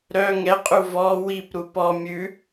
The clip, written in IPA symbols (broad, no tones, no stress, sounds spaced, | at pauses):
ɾ œ ŋ ɛ qʼ u v ɔ w i p ɾ u p ɔ mʲ ʉ